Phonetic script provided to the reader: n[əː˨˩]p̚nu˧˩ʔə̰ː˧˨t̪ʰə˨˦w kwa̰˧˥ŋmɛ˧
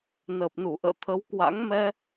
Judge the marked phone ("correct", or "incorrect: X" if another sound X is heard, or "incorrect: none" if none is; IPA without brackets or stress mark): correct